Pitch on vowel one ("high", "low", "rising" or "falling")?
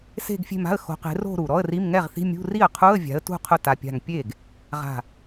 falling